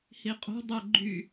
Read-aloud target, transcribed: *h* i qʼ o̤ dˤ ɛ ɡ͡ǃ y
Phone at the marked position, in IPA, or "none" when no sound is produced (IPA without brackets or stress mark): h